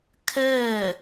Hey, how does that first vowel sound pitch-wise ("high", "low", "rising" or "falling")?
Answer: falling